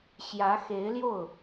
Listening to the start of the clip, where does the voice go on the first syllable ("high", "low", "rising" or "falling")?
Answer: rising